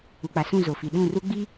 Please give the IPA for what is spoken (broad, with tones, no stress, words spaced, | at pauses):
u˨k͡pa˨sũ˦˨ zo˨fi˨ ɗũ˦˨ru˦ ɡ͡bi˦